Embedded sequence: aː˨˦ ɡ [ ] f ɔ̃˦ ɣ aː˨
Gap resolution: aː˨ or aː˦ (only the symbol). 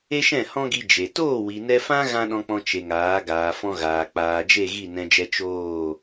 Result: aː˨